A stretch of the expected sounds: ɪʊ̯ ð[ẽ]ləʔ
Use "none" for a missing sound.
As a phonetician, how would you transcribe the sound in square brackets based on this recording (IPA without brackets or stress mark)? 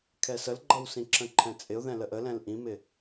ɛ̃